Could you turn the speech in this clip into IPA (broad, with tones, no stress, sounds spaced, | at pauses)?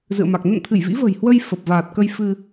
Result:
z ɨ̰˧˨ ə̯ m a˨˩ k̚ n ə̰˧˨ n t̪ʰ ɨ˧˩ j v ḭ˧˥ v ə̤˨˩ j h w ə˧ j f ə˨˩ p̚ v aː˨˩ t̚ k ə˧ j f ɨ˧